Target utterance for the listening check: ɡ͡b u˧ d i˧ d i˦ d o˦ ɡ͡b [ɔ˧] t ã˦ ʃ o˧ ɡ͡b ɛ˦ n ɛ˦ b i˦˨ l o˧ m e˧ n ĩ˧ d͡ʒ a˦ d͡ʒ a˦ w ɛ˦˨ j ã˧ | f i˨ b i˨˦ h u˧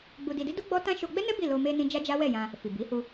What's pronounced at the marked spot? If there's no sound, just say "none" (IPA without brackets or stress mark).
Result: ɔ˦